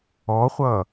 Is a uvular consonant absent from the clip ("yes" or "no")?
no